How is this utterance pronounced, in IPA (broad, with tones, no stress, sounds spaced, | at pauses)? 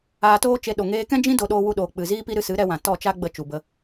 aː˧ t oː˦ t͡ʃ e˧ ɗ o˨ ŋ eː˧ k ɛ̃˦ d͡ʒ ĩ˦ d o˧ ɗ oː˧ w u˧ ɗ oː˨ k͡p ɨ˨ z iː˦ p i˦ ɾ ɨ˧ s ɨ˨˦ ɾ ɛ˧ w ã˨ t ɔ˦˨ t͡ʃ a˦ ɡ͡b ə˧ t͡ʃ u˨ b ə˧